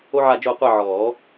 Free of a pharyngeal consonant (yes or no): no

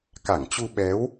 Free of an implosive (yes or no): no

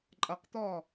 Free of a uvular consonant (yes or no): no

